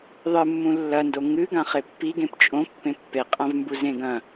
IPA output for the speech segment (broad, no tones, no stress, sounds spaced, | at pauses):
ðˤ ɨ mː ũ lː ɐ n d o ŋ ɨ ɡ ã χ e pː i ɡ ẽ p t͡ʃʼ õ pː ẽ pː e qʼ ã v m b u z ẽ ɡ ɐ̃